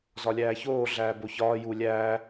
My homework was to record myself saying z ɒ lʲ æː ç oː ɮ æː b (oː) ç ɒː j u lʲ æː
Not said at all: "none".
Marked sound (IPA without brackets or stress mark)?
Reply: o